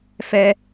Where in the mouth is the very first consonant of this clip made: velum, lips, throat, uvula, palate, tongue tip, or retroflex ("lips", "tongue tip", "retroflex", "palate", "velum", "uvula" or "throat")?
lips